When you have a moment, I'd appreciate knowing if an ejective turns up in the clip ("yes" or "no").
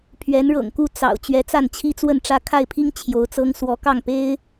no